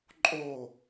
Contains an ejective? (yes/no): yes